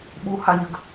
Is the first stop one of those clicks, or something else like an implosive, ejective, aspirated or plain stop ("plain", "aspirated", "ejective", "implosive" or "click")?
implosive